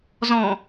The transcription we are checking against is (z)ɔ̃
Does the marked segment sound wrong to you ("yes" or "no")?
no